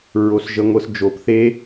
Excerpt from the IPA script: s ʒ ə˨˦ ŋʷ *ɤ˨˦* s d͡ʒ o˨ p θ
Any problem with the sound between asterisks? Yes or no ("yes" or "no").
no